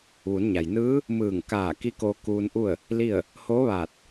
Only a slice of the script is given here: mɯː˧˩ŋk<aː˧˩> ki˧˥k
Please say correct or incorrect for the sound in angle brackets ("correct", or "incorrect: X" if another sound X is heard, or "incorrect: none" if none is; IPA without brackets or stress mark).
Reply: correct